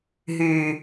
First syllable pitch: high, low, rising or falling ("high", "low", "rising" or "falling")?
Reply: low